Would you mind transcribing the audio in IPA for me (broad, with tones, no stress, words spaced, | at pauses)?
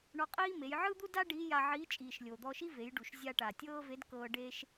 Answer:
ɳɔ˧qʼiː˥me˩˧j ʕɯ˥d̪u˥da˥ ɖiː˧˥ja˧ʕiː˧˥t͡ʃʼiː˩ʃ lʲo˩d̪ɔ˧ ʃi˥ve˩˧jɖu˩ʃ zʲa˧ʈa˩ tʲɤː˥ve˧˥dkɤː˧ ɖe˥ʃ